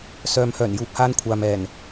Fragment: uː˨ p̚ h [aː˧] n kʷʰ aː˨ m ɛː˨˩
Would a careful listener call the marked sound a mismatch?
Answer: no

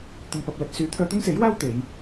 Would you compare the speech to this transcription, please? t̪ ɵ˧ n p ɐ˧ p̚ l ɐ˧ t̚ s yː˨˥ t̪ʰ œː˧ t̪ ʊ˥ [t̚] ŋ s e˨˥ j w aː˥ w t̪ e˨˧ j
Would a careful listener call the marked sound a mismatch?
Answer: yes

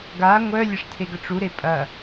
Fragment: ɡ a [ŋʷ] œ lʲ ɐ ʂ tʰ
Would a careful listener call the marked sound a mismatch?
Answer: no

